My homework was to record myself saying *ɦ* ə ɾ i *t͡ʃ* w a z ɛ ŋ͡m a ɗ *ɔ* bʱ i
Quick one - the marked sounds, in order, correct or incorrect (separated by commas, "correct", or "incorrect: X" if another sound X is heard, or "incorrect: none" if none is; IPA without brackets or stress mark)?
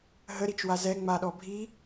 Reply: correct, correct, correct